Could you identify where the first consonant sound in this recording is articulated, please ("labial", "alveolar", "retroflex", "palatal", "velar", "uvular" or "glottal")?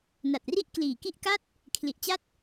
alveolar